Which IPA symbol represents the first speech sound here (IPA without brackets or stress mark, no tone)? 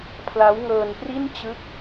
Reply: pʰ